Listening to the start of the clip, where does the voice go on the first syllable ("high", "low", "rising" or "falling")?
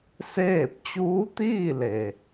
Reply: falling